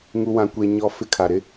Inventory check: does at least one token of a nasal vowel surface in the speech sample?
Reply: yes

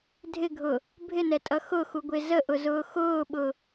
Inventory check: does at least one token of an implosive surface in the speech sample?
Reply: yes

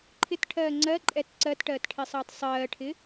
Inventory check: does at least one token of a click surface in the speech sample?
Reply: yes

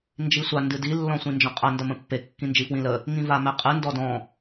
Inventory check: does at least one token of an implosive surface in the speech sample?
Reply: no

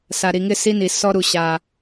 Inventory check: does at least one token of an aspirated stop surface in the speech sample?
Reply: no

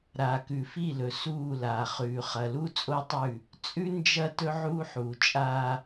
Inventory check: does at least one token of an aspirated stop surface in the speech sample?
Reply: no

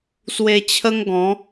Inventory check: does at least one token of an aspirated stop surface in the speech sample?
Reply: yes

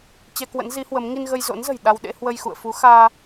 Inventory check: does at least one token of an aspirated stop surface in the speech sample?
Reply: no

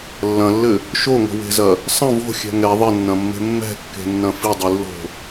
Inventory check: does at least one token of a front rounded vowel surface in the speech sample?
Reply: no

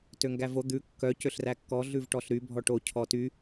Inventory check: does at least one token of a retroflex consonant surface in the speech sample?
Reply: yes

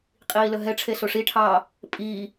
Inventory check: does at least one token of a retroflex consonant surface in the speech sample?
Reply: yes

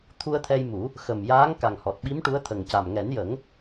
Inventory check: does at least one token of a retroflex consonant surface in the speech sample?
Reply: yes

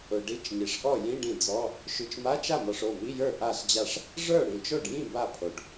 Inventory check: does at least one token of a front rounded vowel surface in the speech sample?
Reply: no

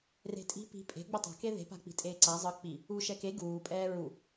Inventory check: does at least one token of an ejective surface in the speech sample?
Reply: yes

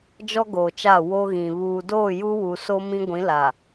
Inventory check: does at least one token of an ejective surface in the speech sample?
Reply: no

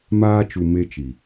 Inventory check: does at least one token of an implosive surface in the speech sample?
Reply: no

